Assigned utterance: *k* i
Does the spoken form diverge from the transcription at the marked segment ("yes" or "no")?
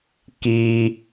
no